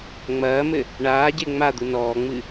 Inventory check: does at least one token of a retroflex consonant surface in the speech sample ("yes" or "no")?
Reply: yes